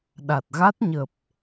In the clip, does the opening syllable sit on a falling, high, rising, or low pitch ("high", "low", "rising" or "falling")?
low